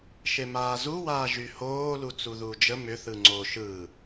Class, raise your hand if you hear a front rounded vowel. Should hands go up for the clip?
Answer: yes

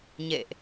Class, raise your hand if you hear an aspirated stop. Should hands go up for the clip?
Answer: no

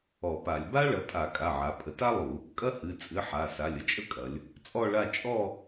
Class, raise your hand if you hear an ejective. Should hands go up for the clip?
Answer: yes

